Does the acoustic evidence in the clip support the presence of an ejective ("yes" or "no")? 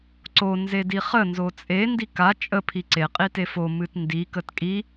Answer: yes